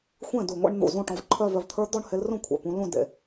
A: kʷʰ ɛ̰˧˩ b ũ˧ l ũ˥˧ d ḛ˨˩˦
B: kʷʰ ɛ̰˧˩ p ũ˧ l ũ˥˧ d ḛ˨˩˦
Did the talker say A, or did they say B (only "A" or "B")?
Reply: B